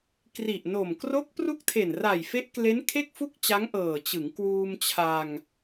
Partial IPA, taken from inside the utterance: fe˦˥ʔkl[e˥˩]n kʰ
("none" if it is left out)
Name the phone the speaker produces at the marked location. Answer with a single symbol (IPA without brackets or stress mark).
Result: e˦˥